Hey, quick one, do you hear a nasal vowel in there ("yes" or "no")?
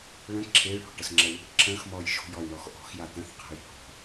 yes